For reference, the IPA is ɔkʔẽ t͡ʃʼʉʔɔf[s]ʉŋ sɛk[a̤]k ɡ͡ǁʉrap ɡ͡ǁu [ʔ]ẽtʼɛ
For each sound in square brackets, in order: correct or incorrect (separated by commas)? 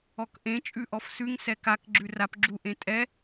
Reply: correct, incorrect, correct